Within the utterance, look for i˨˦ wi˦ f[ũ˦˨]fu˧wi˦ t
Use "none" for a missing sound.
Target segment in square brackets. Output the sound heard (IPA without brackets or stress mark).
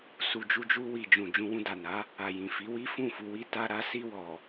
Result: ũ˦˨